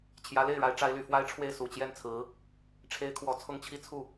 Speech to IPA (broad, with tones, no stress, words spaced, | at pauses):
t͡ɕʰjä˧˥le˥˩ɪ̯ɻa˧˥ɪ̯ ʈ͡ʂa˧˥ɪ̯ly˨˩ fwa˥˧ɪ̯ʈ͡ʂʰwe˥˩ɪ̯ su˨˩t͡ɕjɛ˥˩nt͡sʰɹ̩˧˥ | ʈ͡ʂʰe˧˥ɪ̯kʰwɔ˨˩ t͡sʰʊ˥˧ŋt͡ɕʰi˥˧ t͡sʰu˥˩